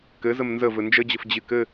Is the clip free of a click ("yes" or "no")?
yes